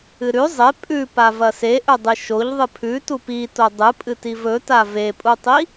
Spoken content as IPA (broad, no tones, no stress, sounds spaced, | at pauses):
ɨ ɾ ʉ zˤ e pʼ ʉ p a v ɐ s e ʔ ɵ dˤ ɨ ʃ o ʎ ðˤ ɨ pʰ ʉ t u p i t o dˤ ɨ pʼ ɨ t i v ɵ t a v e pʼ u tˤ i